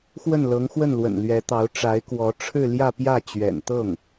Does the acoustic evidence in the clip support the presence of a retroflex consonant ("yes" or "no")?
yes